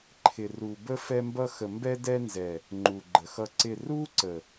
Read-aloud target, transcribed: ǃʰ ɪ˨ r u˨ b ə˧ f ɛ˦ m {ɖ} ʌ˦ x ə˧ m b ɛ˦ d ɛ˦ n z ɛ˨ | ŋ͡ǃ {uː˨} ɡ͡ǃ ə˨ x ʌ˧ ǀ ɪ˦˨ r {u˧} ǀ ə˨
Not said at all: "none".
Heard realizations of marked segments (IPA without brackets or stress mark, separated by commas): b, u˨, u˦